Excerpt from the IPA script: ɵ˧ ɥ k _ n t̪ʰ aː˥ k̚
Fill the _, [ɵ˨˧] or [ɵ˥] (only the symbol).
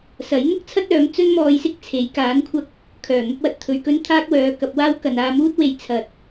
ɵ˥